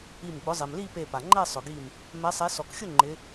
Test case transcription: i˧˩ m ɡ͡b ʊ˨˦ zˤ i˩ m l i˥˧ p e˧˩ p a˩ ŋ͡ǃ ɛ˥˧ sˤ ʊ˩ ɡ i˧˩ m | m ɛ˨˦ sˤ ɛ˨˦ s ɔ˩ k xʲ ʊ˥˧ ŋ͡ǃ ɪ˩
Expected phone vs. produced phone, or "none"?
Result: ɪ˩ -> ɪ˨˦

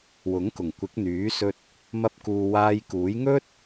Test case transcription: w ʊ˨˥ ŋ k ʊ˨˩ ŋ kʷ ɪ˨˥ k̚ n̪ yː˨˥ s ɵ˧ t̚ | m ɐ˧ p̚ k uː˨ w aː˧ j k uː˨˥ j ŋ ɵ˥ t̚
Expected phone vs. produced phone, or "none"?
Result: none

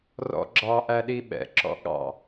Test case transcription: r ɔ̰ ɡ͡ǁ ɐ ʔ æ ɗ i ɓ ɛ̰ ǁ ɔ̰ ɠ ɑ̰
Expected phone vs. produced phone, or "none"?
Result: ɐ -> ɑ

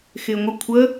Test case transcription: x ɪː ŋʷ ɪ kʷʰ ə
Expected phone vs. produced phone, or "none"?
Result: none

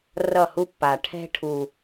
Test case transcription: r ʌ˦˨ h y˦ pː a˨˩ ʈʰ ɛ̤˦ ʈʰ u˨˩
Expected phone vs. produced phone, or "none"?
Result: y˦ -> u˦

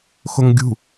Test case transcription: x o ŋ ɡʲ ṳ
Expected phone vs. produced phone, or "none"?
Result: none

